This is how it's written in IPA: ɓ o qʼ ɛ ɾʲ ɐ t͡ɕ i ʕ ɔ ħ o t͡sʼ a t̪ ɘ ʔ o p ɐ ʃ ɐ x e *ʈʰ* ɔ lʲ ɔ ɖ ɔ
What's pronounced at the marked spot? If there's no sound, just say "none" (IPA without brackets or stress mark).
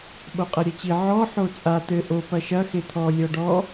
t̪ʰ